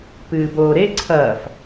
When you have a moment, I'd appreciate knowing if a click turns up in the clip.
yes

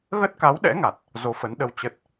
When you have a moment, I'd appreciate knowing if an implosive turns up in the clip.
yes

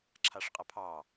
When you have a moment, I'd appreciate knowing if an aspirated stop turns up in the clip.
yes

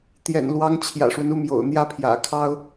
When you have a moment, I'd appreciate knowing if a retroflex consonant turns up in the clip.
yes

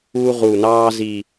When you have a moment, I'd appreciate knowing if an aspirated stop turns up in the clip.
no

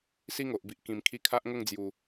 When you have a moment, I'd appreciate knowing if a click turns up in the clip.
no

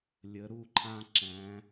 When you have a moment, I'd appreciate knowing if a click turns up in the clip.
yes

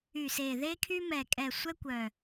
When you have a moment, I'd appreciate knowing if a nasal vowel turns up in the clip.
no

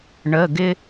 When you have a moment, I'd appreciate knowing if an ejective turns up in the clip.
no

